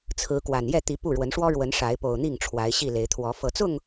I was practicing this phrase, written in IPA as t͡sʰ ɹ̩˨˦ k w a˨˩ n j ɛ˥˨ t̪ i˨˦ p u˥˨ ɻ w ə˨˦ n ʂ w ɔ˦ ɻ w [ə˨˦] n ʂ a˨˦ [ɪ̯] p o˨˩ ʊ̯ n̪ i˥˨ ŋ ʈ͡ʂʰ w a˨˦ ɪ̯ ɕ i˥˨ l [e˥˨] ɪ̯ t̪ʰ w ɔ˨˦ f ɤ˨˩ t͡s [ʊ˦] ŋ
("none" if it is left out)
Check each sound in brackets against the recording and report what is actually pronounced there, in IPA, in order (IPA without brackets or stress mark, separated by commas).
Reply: ə˨˦, ɪ̯, e˨˦, ʊ˥˨